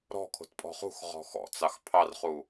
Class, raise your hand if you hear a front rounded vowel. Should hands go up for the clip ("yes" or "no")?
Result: no